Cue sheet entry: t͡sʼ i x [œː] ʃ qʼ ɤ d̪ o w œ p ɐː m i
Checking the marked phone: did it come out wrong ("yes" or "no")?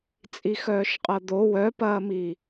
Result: no